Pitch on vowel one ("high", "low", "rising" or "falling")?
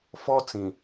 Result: high